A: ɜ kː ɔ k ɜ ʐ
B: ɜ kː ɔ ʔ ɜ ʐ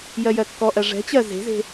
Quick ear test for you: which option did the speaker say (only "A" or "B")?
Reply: B